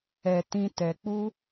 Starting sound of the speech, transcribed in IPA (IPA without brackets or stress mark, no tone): ɛ